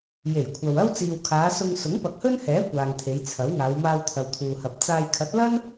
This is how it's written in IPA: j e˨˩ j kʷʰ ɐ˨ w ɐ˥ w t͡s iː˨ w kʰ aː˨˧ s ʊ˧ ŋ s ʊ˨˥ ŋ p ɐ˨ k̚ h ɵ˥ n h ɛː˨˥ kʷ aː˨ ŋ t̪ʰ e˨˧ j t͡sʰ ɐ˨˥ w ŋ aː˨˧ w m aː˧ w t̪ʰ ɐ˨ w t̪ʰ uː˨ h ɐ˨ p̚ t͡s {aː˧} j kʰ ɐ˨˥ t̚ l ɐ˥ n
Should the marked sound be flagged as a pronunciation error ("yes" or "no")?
yes